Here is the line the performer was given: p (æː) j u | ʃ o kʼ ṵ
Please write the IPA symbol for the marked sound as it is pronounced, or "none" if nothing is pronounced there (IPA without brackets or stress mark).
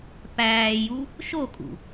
æː